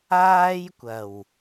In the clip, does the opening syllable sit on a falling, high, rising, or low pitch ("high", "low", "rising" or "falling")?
high